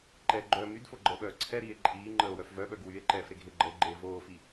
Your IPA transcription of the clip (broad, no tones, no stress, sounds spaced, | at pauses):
ǃ ɛ ɡ͡ǃ œː m y d f o ɡ͡ǃ əː ɓ œː ǀʰ ɛ ɾ iː e̯ ǃʼ iː ŋ͡ǃ əː o̯ w œ f v œ ɓ œ ɡ w y e̯ ǃ ɛː f ɾ e ɡʱ e ɡ͡ǃ əː ɡ͡ǃ eː v oː f i